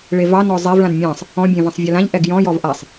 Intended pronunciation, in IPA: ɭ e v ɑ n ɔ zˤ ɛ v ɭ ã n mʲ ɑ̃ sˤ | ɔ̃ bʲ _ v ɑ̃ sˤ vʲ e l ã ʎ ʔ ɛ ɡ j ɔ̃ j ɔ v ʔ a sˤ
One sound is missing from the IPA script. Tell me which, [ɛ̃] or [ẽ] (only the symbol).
ẽ